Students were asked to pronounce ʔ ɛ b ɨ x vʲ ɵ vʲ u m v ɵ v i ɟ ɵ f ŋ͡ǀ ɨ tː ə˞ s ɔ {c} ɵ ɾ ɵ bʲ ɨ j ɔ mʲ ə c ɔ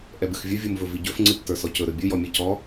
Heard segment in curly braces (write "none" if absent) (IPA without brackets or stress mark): c